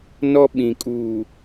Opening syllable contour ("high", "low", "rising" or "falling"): high